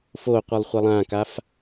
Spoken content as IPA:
fo qʷɨlˠχʷilˠãkaf

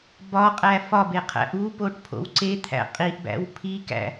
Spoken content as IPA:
bɒqʼæ fɒbe qʰæ̰ʔupoʈ pʰo̰wǀet̪ʰæ̰ qʼiʔbæ̰w pʰikæ̰

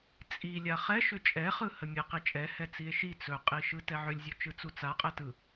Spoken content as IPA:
t͡sʼi lʲaχɛʃʏ t͡ʃʼɛχɯ həmʲeqit͡ʃʼɛ hɛt͡sie̯ʃi t͡sɵqʼiʃɯ tɛʕʏlʲzʲu t͡ʃɯt͡sut͡sa qʼɛtɯ

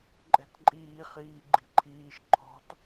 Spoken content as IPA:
ǃʼɛ̤tǃʼiː χiːɡ͡ǃi̤ǃʰiːʃ ǃʰɔ̤t

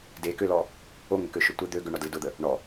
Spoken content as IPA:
dekʏlɔ | oŋʏkøʃʊ tʷɪ d̪ø ɡʏɳɔdlɪ dʊd̪ə | ɳɔ

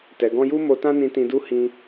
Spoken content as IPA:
tɛ˨ɡɔ̃˧ju˦ mo˧tã˦nĩ˧ tĩ˧du˦ hĩ˧

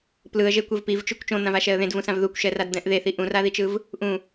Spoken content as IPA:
plɯə̯ʒekʷev pivt͡ʃukʷ t͡ʃõn̪ãvaʃɛə̯ ðẽdvũsãv ðukʷʃɛradd̪ɛ̃ʔ ðeθi ʔũraðit͡ʃɯv | ʔũ

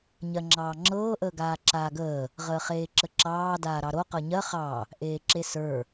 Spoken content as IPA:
ɲɜŋ͡ǁɑːŋ͡ǁɤː ʔəːɡaːǁaːɡəː | ʁəːχeːǁəǁɑː daːɾɑɾo qɤɲɜ χɑ | ʔeːǁesə˞

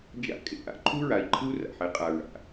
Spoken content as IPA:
d͡ʒa̰˦ kʼḛ˦ʔa̰˦ ǃʰu˦ɹa˨i̯ǃʰɯ˦u̯ ra̰˨ħe˦qʼa˨ ɹa̰˨

